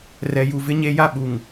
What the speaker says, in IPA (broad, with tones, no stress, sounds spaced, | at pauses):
r ɛ˨ j u˨ v ɪ˦ ɲ e˦ j a˦ ɓ u˨ ŋ